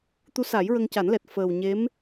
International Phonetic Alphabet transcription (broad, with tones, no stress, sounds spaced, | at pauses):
t̪ u˧˥ s a˨˩˦ j ɹ ə˧ ŋ c a˨˩˦ n l ɛ˨˩ t̚ f əː˨˩ w ɲ e˧˥ m